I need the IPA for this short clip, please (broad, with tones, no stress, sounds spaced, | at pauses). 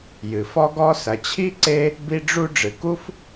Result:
j ɨ˩ f ɔ˥ ɡ ɔ˥ s ɐ˩ t͡ɕʰ i˥ ǀ e˥ | b i˥ ɖ͡ʐ u˥ ɖ͡ʐ ɨ˩ k u˥ f